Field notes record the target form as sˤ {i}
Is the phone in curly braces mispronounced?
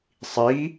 no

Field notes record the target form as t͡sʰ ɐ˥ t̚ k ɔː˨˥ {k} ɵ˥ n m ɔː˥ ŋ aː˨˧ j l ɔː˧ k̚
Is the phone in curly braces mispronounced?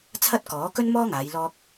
no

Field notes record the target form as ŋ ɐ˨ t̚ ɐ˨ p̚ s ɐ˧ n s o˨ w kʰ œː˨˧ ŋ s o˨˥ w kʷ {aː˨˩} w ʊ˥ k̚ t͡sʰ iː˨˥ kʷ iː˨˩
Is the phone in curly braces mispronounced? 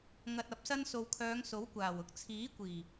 no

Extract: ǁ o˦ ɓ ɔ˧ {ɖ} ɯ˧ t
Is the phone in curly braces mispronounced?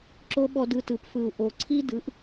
yes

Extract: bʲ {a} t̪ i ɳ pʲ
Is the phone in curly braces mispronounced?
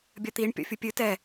yes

